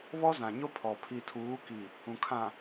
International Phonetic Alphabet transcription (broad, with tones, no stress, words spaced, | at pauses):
βɔ˦zã˨ɲo˦ pʰɔ˨ pʰi˨tʰuː˨˦ki˨ | ũ˨kʰã˨